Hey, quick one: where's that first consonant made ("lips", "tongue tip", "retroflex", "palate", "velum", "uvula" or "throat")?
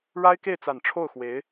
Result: retroflex